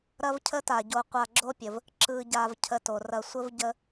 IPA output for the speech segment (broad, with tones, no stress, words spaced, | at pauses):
ɾɐ˦vcʰə˦ta˩ɟo˨ qʷa˨ɡ͡ǁo˦pʲə˩v | ǁɯ˨ɟa˨v cʰə˨to˩ rɐ˨ sʷə˥vɟə˦